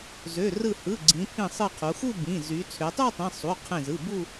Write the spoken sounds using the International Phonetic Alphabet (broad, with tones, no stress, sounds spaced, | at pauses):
z ø˩˧˩ r ɯ˧˩ h ɯ˩˧˩ ɡ͡ǀ ĩ˩˧ pʰ ĩ˧˩ sˤ ɯ˧˩ qʰ u˩˧ x u˥˧ b ĩ˩˧˩ z y˩˧ t͡sʰ ø˩˧ tˤ u˥˧ tˤ ĩ˩˧˩ sˤ u˩˧˩ qʰ ẽ˧˩ z ɯ˩˧˩ b u˥˧